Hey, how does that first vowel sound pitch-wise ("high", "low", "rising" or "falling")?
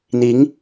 rising